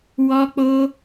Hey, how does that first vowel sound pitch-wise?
high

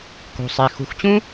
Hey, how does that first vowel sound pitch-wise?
low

